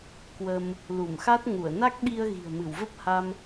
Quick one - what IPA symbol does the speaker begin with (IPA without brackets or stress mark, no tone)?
k